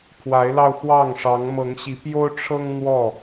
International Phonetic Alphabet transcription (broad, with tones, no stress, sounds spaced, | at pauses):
pʰ w a˨˦ ɪ̯ l ɑ˧ ʊ̯ x w ɑ˥˨ ŋ ʂ ɑ˨˦ ŋ m ɤ˨˦ ŋ ɕ i˨˦ p j o˦ ʊ̯ ʈ͡ʂʰ ɤ˦ ŋ n̪ w ɔ˥˨